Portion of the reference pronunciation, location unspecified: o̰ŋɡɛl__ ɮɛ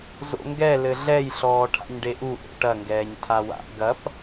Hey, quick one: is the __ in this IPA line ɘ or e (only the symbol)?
ɘ